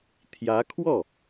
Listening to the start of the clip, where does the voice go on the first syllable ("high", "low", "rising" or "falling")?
rising